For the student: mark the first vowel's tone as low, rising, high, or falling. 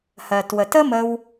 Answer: low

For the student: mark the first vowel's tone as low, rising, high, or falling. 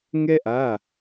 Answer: high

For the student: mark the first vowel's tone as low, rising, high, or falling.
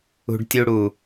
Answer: low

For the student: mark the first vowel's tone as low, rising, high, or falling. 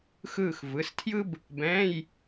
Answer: falling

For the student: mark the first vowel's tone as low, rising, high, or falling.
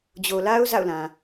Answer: low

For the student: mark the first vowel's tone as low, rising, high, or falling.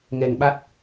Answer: low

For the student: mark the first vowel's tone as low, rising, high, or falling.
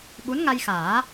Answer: rising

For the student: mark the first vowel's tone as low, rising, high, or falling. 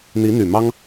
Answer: rising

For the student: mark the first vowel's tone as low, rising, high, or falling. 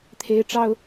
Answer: high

